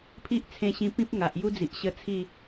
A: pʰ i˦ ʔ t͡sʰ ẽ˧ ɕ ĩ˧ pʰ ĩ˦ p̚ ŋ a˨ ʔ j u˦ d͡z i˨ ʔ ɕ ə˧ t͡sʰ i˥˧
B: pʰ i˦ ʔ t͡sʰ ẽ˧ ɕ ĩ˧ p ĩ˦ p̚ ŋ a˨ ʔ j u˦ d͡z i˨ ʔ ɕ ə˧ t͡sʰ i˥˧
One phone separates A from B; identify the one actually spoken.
B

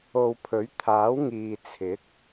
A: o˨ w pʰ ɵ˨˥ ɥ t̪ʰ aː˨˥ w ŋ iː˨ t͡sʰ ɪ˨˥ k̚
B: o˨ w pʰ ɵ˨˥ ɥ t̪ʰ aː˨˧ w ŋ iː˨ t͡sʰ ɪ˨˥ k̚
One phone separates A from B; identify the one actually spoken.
A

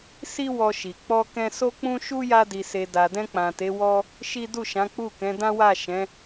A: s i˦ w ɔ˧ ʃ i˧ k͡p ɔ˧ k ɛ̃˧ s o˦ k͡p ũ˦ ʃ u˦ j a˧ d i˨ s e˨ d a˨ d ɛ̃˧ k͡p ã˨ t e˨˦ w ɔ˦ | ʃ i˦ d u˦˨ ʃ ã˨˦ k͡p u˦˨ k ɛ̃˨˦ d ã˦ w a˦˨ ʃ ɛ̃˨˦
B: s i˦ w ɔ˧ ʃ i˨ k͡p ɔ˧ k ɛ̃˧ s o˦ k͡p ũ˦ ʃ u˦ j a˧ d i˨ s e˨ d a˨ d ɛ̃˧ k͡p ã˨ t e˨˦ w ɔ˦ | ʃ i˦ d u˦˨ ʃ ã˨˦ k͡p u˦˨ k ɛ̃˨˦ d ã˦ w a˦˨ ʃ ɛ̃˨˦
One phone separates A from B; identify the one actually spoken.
B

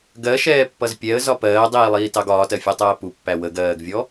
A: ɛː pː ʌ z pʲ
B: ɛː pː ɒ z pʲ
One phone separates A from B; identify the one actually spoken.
A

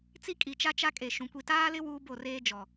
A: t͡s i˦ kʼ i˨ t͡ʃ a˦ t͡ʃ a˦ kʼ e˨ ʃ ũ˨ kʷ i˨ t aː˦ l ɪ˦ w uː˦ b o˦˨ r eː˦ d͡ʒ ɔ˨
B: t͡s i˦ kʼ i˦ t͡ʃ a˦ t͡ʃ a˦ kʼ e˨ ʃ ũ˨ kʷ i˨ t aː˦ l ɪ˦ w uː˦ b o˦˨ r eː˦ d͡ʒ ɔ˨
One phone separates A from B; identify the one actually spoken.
A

